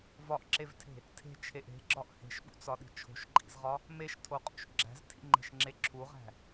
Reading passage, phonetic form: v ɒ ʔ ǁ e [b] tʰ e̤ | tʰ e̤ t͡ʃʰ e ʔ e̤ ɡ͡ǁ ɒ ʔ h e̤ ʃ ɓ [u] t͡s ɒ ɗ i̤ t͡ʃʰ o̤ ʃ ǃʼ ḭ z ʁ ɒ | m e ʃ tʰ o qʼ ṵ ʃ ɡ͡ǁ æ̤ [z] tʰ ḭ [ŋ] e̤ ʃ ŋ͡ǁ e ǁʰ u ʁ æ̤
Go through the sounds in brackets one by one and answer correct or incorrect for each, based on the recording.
incorrect, incorrect, correct, incorrect

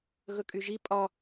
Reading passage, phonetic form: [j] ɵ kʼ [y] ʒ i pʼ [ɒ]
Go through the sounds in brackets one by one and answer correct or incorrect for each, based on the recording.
incorrect, correct, correct

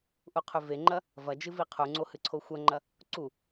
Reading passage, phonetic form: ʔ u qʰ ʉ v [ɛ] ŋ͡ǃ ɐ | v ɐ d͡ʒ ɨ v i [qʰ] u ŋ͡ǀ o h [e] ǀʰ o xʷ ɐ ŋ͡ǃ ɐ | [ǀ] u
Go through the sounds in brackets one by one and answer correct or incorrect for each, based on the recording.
incorrect, correct, incorrect, correct

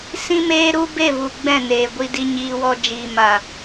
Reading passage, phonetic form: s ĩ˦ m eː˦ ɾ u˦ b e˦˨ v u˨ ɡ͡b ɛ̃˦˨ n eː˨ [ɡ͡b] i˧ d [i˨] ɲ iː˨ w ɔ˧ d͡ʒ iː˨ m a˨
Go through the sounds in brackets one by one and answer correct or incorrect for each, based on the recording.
incorrect, incorrect

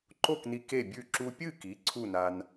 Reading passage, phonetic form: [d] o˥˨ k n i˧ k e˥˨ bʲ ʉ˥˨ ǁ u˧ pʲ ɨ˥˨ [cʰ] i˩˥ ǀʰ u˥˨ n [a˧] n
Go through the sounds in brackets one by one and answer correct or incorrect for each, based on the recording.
incorrect, incorrect, correct

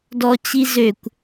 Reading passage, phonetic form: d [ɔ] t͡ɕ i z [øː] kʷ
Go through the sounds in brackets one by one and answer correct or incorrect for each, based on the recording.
correct, incorrect

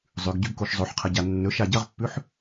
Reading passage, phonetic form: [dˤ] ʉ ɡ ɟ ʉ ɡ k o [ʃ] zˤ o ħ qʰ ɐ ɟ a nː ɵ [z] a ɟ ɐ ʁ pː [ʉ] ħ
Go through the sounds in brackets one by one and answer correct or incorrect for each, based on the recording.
incorrect, correct, incorrect, correct

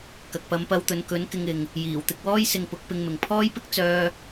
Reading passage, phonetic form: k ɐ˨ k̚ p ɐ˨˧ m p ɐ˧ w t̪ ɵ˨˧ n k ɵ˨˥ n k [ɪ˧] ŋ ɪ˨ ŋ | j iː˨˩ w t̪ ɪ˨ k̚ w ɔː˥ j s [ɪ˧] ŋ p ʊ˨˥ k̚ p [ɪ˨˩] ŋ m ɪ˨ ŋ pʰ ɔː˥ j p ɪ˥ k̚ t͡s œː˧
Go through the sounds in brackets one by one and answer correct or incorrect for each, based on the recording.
correct, correct, incorrect

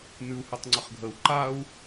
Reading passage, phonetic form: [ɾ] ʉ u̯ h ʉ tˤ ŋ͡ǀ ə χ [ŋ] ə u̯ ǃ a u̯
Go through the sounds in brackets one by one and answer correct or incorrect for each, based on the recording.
incorrect, incorrect

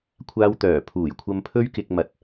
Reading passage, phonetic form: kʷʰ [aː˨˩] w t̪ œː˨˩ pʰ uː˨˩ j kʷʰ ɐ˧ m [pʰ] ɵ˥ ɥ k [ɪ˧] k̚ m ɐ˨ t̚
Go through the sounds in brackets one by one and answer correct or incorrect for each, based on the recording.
incorrect, correct, correct

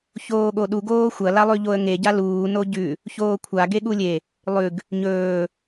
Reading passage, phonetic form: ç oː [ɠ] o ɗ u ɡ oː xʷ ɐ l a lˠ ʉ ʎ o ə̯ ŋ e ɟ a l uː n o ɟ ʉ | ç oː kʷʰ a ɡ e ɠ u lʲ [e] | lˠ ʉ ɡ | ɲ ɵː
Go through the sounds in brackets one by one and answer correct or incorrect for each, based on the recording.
correct, correct

